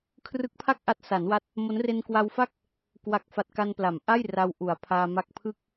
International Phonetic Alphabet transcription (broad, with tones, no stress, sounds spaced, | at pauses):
kʰ r ɯ˦˥ k̚ pʰ a˥˩ k̚ ʔ a˦˥ t̚ s a˩˦ n w a˦˥ t̚ | m o˦˥ n r e˧ n k w a˧ w f a˥˩ k̚ | k w a˨˩ k̚ f a˨˩ t̚ k a˧ n p l a˩˦ m ʔ a˥˩ j r a˧ w ʔ u˩˦ a̯ pʰ aː˧ m a˥˩ k̚ pʰ ɯ˥˩ k̚